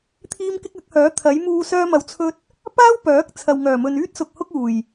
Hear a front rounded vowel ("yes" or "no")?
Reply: yes